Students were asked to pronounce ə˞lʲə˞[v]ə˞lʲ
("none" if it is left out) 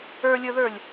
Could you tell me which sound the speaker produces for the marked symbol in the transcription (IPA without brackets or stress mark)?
ð